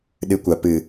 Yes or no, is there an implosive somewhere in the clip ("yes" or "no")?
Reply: yes